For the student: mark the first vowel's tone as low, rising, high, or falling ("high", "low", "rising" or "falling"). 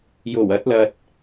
low